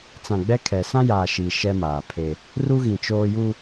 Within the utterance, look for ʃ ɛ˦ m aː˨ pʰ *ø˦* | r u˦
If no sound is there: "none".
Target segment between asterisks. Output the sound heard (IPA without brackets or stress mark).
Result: e˦